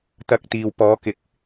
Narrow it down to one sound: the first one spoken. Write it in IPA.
t̪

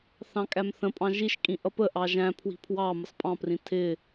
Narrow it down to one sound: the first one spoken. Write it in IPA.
θ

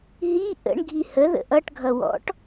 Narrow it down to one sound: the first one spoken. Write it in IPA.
ɦ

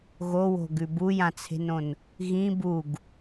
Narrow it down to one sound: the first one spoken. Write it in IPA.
ɣ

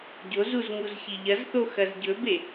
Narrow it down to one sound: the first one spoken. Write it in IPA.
ɟ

